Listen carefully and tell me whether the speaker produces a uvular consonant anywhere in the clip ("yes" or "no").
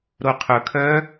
yes